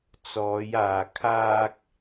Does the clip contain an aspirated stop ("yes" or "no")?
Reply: yes